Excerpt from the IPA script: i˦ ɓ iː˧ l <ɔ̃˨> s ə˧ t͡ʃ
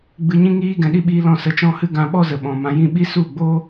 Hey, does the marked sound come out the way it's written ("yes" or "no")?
no